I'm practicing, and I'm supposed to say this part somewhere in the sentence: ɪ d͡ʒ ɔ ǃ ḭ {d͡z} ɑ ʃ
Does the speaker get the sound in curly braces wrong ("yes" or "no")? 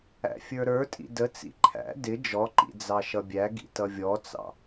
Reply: no